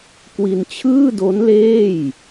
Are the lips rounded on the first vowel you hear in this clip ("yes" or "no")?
no